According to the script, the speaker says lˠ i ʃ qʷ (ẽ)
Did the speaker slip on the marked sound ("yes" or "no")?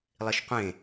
no